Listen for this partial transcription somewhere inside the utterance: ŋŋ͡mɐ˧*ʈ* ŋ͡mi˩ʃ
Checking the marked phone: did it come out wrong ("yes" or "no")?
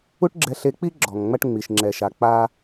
no